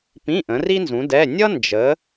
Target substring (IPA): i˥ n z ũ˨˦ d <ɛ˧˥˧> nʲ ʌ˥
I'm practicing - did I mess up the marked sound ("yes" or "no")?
no